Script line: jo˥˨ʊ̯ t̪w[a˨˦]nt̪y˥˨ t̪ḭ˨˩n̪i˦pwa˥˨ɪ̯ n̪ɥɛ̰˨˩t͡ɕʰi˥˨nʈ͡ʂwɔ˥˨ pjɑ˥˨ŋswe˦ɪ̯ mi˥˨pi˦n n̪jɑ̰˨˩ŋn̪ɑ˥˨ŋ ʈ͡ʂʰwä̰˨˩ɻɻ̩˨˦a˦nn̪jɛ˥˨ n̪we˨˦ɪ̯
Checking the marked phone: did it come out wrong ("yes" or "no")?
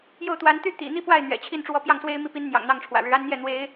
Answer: no